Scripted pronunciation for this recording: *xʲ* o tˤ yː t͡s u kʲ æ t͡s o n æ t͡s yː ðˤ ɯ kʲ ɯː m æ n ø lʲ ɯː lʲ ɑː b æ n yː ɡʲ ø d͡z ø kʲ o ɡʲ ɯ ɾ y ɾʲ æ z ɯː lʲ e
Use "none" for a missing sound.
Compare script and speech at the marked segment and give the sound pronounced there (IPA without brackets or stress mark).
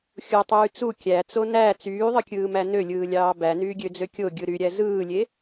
xʲ